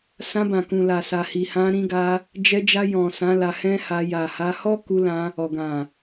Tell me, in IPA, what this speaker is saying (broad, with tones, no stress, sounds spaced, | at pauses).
s ã˧ b ã˨ k ũ˨ l a˨ s a˨ h i˨ h ã˧ ɾ ĩ˧ ɡ a˧ | d͡ʒ ɛ˧ d͡ʒ a˧ j ɔ̃˨ s ã˨˦ l a˧ h ɛ̃˦ h a˧ j a˨ h a˧ h ɔ˦ k u˧ l ã˧ | ɔ˨ ɡ ã˨